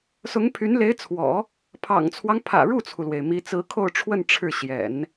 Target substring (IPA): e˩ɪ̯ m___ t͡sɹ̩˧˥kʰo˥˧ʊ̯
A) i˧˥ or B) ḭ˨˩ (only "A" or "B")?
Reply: A